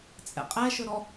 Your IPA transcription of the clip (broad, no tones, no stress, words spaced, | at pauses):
t͡sʼɛ̰qʼɛʃɵɾɔ